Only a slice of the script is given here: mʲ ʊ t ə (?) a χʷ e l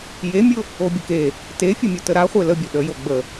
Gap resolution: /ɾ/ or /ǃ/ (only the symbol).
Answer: ɾ